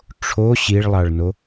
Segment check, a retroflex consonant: present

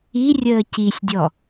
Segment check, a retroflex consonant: absent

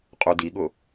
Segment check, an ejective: present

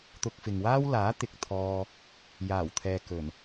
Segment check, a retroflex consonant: absent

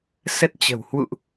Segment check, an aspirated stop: absent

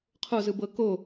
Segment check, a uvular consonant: present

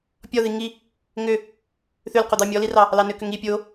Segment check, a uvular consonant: present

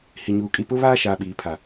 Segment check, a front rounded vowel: absent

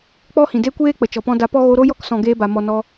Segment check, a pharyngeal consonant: absent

